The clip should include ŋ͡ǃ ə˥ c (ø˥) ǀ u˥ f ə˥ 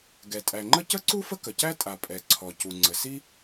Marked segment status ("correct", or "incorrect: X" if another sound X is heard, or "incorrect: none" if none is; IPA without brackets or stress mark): incorrect: ə˥